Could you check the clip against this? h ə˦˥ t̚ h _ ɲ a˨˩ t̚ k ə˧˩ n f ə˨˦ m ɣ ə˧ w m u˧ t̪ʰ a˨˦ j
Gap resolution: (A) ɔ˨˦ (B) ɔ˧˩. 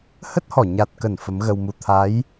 B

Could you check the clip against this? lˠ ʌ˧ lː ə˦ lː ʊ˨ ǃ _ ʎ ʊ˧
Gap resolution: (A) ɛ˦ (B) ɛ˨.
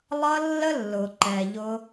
B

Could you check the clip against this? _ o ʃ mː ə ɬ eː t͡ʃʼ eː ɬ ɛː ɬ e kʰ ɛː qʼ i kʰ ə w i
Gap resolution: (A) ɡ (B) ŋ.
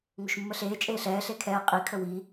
B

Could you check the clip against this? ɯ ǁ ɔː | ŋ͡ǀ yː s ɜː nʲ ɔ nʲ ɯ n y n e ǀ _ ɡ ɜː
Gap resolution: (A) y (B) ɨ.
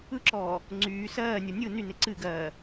B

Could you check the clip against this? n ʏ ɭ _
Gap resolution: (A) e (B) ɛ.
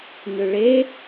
A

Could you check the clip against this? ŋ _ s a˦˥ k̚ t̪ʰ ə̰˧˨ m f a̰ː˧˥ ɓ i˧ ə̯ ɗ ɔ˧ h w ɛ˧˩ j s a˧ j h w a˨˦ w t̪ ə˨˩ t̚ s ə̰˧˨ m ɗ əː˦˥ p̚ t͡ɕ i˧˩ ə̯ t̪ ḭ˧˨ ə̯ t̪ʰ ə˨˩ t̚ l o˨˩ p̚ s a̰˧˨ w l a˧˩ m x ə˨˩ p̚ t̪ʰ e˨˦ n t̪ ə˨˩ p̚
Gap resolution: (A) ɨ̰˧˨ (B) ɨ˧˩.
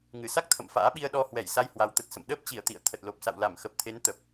B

